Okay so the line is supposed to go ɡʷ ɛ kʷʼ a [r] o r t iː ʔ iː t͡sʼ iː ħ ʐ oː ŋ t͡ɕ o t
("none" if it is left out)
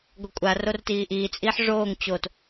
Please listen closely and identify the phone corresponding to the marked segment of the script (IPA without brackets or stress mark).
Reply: r